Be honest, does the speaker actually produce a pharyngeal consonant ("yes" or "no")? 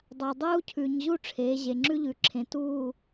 no